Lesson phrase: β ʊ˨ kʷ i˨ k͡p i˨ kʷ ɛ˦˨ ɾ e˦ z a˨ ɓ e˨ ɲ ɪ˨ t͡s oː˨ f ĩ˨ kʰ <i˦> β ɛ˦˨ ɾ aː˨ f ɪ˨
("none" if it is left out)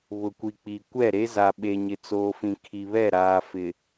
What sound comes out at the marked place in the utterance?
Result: i˨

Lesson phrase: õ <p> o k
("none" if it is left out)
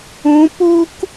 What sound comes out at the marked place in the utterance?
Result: p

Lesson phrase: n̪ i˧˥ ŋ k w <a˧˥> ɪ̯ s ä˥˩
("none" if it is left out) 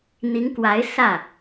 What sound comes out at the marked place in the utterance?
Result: a˧˥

